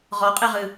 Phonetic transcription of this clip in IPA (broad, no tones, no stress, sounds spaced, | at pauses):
ʁ ɔ qʼ e ʁ ɨ